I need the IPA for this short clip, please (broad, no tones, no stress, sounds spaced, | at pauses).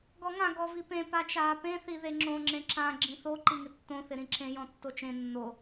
ɡ ɔ ŋ ã ɡ ɔ v i p ẽ p a t͡ʃ aː p ẽ θ i ð e ŋ͡ǁ õ ŋ͡ǁ ẽ ǁ ã ɡ͡ǁ ĩ θ o ǃ i ŋ ɪ tː õ θ ɪ ɾ ĩ ǁ ẽ j ɔ̃ tː o t͡ʃ ẽ nː o